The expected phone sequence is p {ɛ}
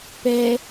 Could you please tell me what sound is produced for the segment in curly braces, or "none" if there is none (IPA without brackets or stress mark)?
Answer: ɛ